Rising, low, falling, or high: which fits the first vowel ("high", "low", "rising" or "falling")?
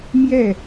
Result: falling